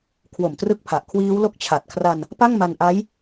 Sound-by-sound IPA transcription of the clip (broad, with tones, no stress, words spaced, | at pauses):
kʰwo˨˩mtrɯ˦˥k̚pʰa˨˩ʔ kʰwiː˦˥wlo˦˥k̚t͡ɕʰa˨˩t̚ kʰra˧n | pa˥˩ŋma˧nʔa˦˥j